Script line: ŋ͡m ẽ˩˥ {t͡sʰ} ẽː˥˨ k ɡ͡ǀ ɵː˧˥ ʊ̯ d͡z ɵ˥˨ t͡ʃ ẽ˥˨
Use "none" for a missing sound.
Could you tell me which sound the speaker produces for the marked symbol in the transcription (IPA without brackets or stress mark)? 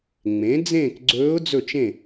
d͡z